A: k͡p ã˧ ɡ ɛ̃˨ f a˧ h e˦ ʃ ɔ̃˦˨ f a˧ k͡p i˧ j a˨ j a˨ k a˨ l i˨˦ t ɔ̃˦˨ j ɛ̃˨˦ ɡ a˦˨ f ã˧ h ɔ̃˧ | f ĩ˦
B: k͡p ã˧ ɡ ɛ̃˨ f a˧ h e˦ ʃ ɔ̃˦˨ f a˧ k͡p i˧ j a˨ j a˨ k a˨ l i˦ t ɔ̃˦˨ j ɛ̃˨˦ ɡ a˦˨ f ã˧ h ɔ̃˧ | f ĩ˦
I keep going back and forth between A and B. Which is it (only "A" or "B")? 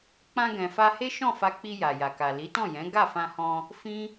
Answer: A